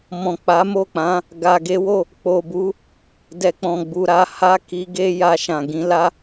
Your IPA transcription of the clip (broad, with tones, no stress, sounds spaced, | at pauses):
m ɔ̃˨ k͡p a˨˦ m o˦˨ k͡p ã˨˦ | ɡ a˨ ɡ e˨˦ w o˦˨ | k͡p o˨ b u˨˦ | d ɛ˨ k͡p ɔ̃˨ ɡ͡b u˨ ɾ a˧ h a˦ k i˧ ɡ e˦ j a˧ ʃ ã˨ ɡ ĩ˧ l a˦